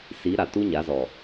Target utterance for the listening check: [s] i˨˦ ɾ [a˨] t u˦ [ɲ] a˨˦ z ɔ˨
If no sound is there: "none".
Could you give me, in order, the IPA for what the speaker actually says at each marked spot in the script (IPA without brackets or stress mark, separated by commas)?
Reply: s, a˨, ɲ